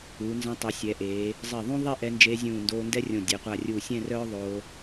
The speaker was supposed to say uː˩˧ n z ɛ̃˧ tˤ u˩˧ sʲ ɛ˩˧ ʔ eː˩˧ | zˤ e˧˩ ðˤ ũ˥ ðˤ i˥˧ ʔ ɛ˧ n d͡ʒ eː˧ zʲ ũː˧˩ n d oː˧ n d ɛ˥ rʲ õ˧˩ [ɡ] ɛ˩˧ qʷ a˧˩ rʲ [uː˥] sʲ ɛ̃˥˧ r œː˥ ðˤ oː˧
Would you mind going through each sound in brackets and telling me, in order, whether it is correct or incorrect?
incorrect: dʲ, incorrect: uː˧˩

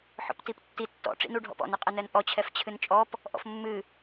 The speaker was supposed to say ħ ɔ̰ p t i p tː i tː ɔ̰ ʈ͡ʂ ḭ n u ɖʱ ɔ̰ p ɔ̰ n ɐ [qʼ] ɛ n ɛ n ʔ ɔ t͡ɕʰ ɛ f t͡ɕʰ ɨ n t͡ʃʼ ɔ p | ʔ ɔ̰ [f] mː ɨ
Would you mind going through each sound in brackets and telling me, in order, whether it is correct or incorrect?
correct, correct

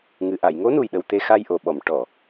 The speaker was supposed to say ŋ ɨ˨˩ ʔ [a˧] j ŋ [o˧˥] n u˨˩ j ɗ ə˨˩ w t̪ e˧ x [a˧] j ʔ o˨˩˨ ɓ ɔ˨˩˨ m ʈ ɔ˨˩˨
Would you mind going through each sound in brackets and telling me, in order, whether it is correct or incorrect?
incorrect: a˨˩˨, correct, correct

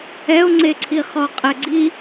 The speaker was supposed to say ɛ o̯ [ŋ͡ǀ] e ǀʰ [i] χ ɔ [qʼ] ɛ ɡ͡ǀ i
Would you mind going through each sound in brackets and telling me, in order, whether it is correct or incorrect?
correct, correct, correct

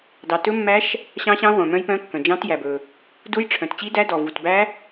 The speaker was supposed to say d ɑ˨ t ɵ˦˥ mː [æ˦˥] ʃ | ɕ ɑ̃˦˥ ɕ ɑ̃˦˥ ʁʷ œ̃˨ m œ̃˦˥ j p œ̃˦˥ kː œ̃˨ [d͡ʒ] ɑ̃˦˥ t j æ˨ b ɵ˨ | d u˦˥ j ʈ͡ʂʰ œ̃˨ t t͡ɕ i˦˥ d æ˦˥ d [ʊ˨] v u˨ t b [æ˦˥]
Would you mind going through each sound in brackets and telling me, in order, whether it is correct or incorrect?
correct, correct, incorrect: ɔ˨, correct

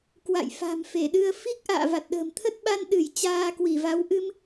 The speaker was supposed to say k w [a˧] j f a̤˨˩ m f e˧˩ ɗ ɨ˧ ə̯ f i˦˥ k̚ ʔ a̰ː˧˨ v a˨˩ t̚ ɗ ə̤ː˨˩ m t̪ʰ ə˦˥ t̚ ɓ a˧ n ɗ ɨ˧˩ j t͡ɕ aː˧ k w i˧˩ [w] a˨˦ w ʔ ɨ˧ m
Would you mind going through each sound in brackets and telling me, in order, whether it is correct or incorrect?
incorrect: a̰˧˨, incorrect: v

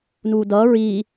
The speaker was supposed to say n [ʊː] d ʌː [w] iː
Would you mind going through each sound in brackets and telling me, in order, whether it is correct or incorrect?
incorrect: uː, incorrect: ɹ

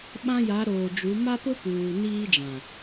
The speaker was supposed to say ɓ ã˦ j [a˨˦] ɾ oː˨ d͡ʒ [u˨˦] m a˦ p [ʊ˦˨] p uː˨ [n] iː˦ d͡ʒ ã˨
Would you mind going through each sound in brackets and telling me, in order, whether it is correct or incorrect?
correct, correct, incorrect: ʊ˦, correct

